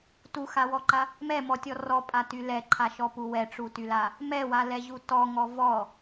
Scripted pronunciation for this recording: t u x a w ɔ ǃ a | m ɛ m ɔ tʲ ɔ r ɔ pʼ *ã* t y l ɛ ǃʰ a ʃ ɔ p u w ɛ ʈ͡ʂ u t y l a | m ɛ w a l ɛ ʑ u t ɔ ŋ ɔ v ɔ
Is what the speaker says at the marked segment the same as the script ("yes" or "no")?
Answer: no